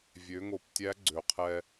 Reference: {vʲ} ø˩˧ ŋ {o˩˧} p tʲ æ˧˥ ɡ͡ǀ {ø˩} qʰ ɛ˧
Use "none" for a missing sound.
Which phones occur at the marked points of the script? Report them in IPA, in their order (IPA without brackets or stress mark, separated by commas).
vʲ, o˩˧, ø˩